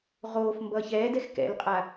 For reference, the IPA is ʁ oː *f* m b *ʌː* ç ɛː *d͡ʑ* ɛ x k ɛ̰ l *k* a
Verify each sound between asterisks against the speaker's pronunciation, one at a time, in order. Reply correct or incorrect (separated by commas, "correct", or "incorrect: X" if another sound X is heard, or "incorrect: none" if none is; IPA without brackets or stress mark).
correct, correct, incorrect: d, incorrect: qʼ